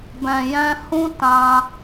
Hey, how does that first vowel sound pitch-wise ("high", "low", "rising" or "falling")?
low